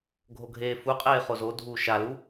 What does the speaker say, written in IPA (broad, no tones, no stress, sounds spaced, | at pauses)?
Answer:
ɡʱ o ɡʱ eː f u qʼ eː χ o z o dʱ uː ʃ a l u